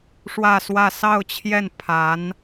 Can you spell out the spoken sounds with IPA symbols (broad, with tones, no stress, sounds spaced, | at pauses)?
ʂ w ä˥˧ s w ä˥˧ s ɑ˥˧ ʊ̯ t͡ɕʰ j ɛ˥˩ n pʰ a˧˥ n